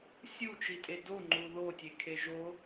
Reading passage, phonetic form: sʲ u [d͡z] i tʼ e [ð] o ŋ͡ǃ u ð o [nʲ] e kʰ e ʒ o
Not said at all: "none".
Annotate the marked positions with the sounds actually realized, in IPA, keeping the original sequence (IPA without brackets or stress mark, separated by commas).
t͡ʃ, d, tʲ